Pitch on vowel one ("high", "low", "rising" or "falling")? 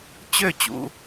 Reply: falling